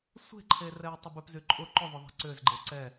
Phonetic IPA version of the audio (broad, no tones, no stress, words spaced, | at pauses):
sʷe̤ǃʰe rɛjtˤɪbʏpzy ǃʼʊ ǃʏðˤʊ ðˤɛ̤ǀʏzɡ͡ǃe ǀɛ